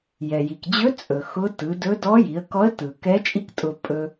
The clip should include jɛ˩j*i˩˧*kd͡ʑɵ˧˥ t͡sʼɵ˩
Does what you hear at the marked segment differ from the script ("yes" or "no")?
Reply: yes